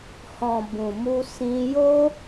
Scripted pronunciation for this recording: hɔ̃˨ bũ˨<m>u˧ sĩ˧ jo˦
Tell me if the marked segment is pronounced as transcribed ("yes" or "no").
yes